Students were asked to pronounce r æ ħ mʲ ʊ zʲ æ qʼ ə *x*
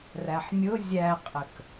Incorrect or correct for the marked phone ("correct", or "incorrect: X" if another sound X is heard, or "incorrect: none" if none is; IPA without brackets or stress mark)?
incorrect: k